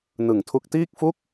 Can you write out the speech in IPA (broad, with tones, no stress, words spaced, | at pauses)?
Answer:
nɯ˨˩ŋtʰu˦˥k̚ tiː˥˩k̚fu˥˩k̚